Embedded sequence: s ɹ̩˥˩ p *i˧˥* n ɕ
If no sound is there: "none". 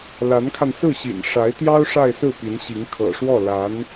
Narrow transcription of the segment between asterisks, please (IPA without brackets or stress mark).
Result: i˧˥